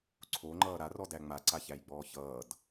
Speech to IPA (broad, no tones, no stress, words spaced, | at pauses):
ǀʰoŋ͡ǃʌː ɾarɔdæ ŋ͡maǀaçæjɡ͡bɔː çʌːd